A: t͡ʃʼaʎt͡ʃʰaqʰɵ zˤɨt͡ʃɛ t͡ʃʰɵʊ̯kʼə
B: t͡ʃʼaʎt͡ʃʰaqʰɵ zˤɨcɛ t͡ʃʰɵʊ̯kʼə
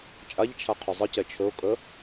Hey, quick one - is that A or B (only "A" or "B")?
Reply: B